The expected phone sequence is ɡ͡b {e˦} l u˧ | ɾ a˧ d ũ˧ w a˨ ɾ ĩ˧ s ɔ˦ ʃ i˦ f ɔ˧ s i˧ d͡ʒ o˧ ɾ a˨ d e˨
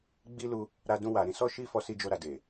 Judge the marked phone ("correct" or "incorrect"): incorrect